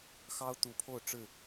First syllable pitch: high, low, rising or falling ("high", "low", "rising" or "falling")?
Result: high